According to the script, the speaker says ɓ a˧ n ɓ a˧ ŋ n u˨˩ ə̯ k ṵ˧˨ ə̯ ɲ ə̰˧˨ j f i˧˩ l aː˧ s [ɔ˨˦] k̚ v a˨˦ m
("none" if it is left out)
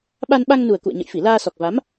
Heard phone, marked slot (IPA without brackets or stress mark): ɔ˨˩